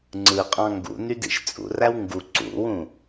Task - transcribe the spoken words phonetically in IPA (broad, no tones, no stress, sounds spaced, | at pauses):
ŋ͡ǀ ɯ qʼ ɑ̃ ŋ ɡ ṵ n y d ḭ ʃ t͡sʼ ṵ r æ w ŋ ɡ u ǀ ṵ w ũ